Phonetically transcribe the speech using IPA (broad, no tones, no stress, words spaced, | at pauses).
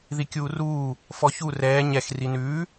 ðikʲuːruː | fɔçu rɛː ɲɛx rinʉː